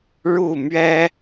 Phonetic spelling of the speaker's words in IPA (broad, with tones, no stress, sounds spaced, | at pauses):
ɻ u˥˨ m ɥ ɛ˦